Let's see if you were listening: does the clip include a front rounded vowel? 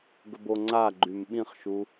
yes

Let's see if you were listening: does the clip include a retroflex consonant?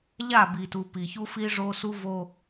yes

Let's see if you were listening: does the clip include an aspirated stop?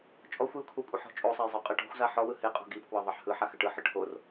yes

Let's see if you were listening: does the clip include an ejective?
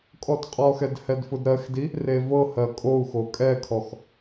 yes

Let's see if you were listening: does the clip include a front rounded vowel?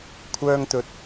yes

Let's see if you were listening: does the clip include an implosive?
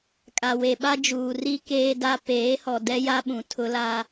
yes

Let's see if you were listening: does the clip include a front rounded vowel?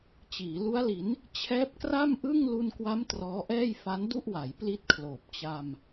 no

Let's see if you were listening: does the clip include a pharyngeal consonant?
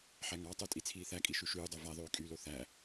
yes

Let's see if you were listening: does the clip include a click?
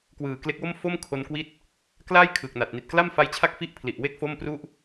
no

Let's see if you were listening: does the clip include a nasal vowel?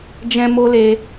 yes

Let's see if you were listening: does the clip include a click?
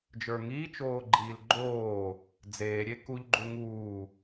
yes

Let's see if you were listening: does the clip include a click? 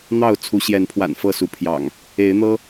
no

